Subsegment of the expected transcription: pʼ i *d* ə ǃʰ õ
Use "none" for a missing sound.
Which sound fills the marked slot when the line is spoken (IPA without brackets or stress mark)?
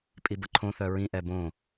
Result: b